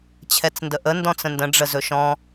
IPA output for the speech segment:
t͡ɕʰ ɛ t͡s n d ə ʔ ə n d ɔ̃ t͡s ə̃ n d ə̃ ɖ͡ʐ ə z ɵ ʃ ɔ̃

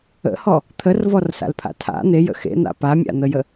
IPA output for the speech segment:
ə̰ h ɔ | t̪ʰ ə r v ɔ r s a̰ l pʰ a̰ tʰ a̰ n̪ e j ə̰ x ḛ n̪ a̰ p a mʲ a̰ n̪ ə j ə

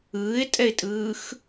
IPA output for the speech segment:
ɯː ɪ̯ tʼ ɛ ɪ̯ tʼ ɯː x

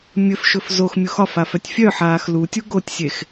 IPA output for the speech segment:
mʲ ɵ f ʃ ɵ f z o x mʲ u x ɒ f a f œ tʲ fʲ œ ħ aː x l u tʲ u ɡ o tʲ sʲ e x

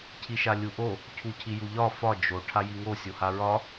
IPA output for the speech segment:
cʰ i ʃ a lʲ u ʔ o | cʰ u cʰ i j u ʎ ɒ f ɒ d͡ʒ o ʈʰ a j i ŋ o sʲ o h a ɹ ɒ

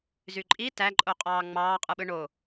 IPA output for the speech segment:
z y ǃʼ i t æ ǃʼ o qʼ ɑː ŋ͡m ɑː qʼ ɯ ɓ ɯ ɳ o

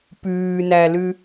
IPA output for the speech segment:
p ʉː n æ l ʉ

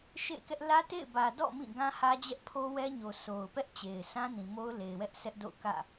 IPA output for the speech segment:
ʃ ḛ˦˨ ɪ̯ k ɛ˦ ʔ l ä˦ t ḛ˦˨ ɪ̯ b ä˨ d ɔ̰˦˨ m ĩ˦˨ ɡ ã˦ h ä˦ d͡ʑ ɛ˦ ʔ pʰ o˦ w ɛ˦ ɲ o˨ sʰ o˨ ʊ̯ p ɛ˦ ʔ t͡ɕ e˨ ɪ̯ s ã˦ n ĩ˨ m o˦ ʊ̯ l e˨ ɪ̯ w ɛ˦ ʔ sʰ ɛ˦ ʔ d o̰˦˨ ʊ̯ k ä̰˦˨

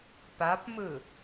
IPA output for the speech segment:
p a p m ɯ

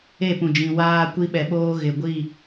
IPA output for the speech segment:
e˦˨ p ũ˨ d͡ʒ ĩ˨ w aː˦ kʷ i˦ ɓ ɛ˨ ɓ oː˦ ɣ ɪ˨ ɡʷ i˦˨

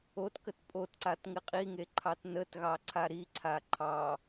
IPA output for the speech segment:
o t k ə t pʼ o t ǀ a t ŋ ɪ qʼ i ŋ e ǃʰ ɑ t n ə t ɣ ɑ ǀʰ a ɾ i ǀʰ a ǃʰ ɑ

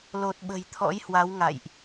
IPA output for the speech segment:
l o˨˩ t̚ ɓ ə̤˨˩ j t̪ʰ ɔ̰˧˥ j h w a˨˦ w ŋ a̰˧˨ j ʔ

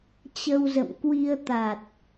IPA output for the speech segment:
t͡ɕ ə˧ w z ə̰˧˨ m k w i˧ ə̯ t̪ a˨˩ t̚

